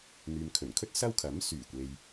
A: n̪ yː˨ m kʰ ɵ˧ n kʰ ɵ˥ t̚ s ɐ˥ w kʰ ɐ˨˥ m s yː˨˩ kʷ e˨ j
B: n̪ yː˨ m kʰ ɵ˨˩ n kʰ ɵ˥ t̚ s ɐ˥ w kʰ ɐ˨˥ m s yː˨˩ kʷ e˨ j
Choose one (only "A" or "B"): B